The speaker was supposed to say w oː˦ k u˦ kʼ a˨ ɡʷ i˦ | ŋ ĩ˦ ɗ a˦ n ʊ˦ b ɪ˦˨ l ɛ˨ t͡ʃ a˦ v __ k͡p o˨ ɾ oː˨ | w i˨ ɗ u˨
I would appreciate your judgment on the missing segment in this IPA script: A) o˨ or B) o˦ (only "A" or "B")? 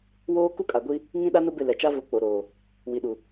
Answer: A